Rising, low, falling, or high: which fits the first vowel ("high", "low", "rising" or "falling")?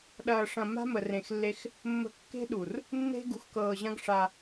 low